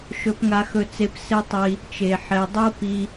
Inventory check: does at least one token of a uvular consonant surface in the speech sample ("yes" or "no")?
no